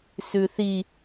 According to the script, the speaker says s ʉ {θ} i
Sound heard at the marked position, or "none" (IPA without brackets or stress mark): θ